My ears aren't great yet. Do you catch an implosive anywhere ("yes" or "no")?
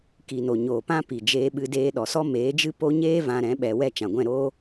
yes